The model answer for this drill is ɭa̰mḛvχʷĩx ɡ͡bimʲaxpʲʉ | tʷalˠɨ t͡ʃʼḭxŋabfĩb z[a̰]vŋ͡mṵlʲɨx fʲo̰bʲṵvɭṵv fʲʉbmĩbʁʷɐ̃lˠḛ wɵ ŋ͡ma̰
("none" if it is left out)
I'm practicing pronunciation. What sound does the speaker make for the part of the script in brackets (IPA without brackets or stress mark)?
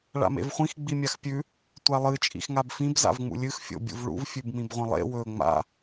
a̰